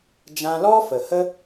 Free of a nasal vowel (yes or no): no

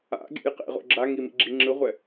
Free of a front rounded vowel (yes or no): yes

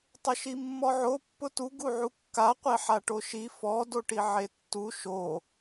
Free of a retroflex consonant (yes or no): no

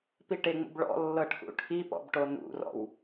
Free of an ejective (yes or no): yes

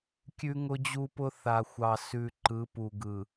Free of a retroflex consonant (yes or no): yes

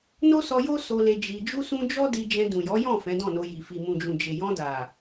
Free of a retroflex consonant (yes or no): yes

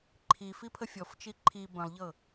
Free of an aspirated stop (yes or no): no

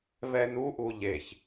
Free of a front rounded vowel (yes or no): yes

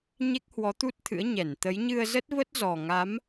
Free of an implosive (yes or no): yes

